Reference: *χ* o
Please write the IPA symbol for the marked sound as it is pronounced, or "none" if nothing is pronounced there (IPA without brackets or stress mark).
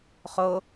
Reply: χ